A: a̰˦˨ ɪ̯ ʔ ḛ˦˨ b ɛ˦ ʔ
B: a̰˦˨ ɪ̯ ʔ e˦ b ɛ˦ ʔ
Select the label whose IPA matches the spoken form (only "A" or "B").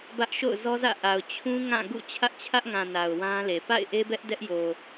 B